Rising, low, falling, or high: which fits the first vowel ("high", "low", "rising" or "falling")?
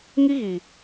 high